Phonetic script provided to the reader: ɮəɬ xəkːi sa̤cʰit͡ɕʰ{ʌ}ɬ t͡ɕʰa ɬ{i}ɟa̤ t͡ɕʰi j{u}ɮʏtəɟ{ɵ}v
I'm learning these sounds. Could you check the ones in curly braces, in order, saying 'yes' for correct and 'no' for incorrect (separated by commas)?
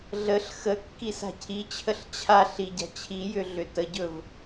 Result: no, yes, no, yes